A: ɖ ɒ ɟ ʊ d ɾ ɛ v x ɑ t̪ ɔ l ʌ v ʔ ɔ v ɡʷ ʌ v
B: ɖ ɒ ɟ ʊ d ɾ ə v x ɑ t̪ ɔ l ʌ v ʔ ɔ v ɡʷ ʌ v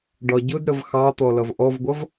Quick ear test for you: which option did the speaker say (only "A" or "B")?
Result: B